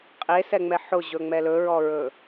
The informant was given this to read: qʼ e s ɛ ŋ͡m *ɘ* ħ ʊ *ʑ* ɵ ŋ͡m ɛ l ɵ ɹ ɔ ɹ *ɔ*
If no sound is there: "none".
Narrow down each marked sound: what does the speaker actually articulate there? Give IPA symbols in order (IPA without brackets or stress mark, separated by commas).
ɛ, ʑ, ɵ